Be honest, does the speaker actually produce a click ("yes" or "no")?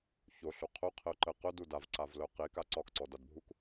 yes